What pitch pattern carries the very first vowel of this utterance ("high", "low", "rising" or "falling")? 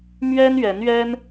high